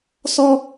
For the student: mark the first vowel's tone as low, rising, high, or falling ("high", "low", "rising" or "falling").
high